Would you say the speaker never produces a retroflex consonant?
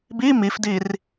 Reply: yes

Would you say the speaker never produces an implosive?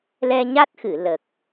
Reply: yes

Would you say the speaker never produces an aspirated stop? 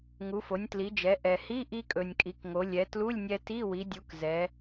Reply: yes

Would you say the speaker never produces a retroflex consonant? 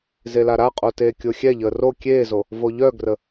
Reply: yes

